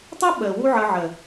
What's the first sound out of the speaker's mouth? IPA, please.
tˤ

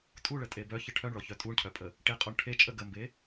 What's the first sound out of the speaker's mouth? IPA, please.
tʼ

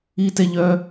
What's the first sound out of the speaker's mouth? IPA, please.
i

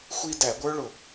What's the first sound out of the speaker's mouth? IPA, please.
xʷ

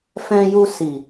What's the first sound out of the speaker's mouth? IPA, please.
f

